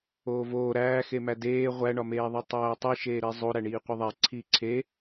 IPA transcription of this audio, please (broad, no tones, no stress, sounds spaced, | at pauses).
oː v oː ɾ æː x e m æ d eː ʁʷ æ ɳ ɒ m eː ðˤ i tˤ æː tˤ i ʃ eː ɾ i zˤ o ɾ æ ɳ iː qʷ i ðˤ æ ǀʰ iː ǀʰ e